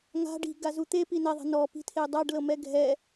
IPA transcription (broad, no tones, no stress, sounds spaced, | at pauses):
ŋ a̤ ɖ i̤ ɡ a z u t̪ e p i n ɛ ðˤ ɛ̤ n ɔ p i̤ tʰ e dˤ a ɖ l ɤ m ɛ ɡʱ ɛ